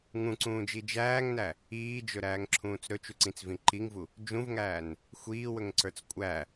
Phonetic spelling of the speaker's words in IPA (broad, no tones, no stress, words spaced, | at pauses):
ŋũǀũːd͡ʒi d͡ʒæːŋnæ | iːd͡ʒɵɾæːŋǁʰũːt͡s ɾɵt͡ʃuǀĩt͡svĩ ǃiŋvu | d͡ʒũvŋæːn | xʷiːwɵŋǀə˞t͡s kʷʼæ